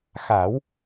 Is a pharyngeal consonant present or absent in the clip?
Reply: absent